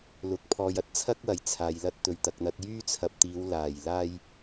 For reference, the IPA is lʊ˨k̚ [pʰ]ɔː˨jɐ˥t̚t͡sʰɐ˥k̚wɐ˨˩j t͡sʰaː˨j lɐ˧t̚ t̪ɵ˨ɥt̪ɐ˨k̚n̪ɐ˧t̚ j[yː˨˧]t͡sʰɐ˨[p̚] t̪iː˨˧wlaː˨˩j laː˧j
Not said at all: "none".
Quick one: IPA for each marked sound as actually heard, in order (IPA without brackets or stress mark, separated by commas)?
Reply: pʰ, yː˥, p̚